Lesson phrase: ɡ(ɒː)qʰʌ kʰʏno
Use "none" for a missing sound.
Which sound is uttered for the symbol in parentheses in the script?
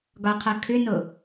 ɒ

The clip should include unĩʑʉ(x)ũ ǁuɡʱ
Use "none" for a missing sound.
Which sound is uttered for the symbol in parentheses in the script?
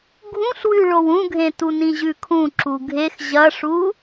kʰ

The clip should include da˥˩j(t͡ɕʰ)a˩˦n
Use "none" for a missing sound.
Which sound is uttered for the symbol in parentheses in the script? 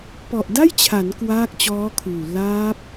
t͡ɕʰ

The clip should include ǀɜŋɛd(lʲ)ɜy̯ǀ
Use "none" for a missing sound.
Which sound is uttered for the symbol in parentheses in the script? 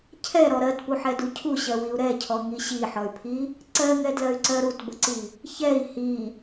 l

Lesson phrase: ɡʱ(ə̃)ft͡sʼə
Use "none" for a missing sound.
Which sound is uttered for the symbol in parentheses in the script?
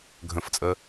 ə̃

